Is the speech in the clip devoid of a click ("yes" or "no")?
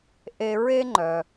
no